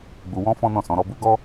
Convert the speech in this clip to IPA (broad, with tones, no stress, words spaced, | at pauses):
ɡ͡bu˨wɔ̃˧ fɔ̃˦nɔ̃˦˨sɔ̃˨˦ ɾɔ˧bu˦ ɡɔ˦